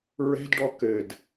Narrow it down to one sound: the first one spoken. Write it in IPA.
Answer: ɹ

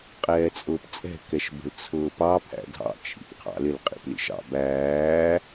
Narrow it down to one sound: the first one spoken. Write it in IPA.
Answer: qʼ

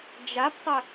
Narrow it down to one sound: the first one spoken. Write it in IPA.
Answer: d͡ʒ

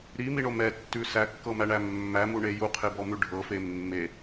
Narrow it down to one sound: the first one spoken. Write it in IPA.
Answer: ɾ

